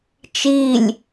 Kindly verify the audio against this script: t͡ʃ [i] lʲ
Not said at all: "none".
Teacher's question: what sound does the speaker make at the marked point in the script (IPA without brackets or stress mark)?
i